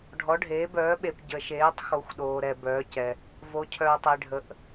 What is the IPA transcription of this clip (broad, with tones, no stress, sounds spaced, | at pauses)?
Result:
ɖʱ ɔ˨˦ ɖʱ eː˨˦ b œː˨˦ ɓ e˨ p ɟ ə˨ ʃ eː˨˦ tˤ x o˨˦ xʷ ɗ oː˨ ɾ ɛ˨ b œː˨˦ c ɛ˨ | v o˨˦ cʰ œː˨ tˤ e˨ ɖʱ ə˨˦ ʔ